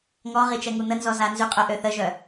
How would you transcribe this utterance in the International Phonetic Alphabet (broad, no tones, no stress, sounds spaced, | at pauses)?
ŋ ɔ ʁ i t͡ʃ ɛ ŋ u n̪ ə n z ɔ z a n z y qʼ œ ʔ ø θ ə ʒ œ